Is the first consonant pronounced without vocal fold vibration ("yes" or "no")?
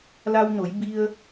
no